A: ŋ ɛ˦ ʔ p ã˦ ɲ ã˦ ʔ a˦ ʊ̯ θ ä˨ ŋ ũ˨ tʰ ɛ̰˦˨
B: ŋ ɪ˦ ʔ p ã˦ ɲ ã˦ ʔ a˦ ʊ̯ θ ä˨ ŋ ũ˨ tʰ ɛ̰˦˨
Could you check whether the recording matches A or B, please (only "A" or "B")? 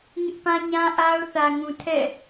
B